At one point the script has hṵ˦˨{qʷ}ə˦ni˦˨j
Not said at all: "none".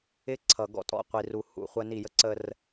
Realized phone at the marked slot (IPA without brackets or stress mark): χʷ